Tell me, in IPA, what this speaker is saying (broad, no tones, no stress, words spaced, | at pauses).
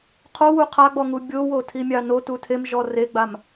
qʰo wuqʰaɡ͡bɔŋu bʲowo tʰimʲɑno tutʰem ʒɔreɡ͡bam